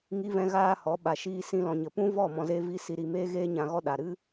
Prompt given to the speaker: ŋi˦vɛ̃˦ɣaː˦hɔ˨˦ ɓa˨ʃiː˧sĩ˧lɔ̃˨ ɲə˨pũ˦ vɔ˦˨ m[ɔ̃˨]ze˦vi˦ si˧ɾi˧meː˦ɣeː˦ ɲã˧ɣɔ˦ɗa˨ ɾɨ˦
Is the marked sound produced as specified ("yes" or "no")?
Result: no